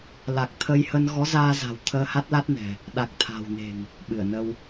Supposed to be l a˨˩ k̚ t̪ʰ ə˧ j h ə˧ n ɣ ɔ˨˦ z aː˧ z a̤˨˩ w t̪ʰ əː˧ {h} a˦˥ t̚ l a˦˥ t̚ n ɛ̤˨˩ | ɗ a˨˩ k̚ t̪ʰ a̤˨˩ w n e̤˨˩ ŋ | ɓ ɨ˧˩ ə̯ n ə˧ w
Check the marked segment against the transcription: correct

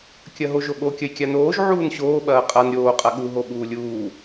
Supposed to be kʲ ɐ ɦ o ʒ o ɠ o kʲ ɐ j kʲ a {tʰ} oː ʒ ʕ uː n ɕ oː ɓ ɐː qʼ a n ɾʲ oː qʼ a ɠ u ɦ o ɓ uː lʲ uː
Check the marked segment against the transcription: incorrect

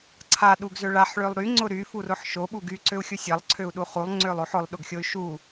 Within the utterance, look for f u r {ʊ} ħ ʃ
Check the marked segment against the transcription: correct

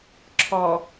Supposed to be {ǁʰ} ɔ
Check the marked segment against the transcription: correct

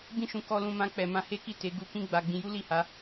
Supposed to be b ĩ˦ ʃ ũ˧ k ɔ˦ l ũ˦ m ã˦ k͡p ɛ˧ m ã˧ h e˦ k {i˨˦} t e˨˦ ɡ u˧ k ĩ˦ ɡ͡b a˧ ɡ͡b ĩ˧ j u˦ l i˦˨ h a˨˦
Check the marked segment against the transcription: incorrect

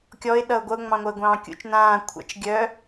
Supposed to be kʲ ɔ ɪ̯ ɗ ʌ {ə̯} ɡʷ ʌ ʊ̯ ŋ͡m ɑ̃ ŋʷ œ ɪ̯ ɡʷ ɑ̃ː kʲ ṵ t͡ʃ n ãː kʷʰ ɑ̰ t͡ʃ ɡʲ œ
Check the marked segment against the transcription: incorrect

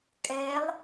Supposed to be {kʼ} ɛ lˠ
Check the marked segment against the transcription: correct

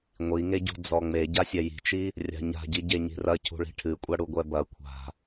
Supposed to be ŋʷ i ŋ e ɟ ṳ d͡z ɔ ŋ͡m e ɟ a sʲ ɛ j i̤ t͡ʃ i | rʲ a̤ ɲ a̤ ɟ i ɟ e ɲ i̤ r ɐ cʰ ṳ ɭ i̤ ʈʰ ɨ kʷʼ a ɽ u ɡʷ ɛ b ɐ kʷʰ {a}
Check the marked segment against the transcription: incorrect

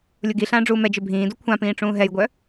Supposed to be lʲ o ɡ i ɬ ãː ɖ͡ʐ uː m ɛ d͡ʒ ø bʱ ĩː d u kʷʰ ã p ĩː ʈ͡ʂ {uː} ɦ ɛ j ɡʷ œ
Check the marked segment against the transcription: incorrect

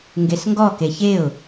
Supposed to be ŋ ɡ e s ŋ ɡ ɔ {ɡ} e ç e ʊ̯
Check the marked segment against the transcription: incorrect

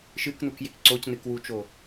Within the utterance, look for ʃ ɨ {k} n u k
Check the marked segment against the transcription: correct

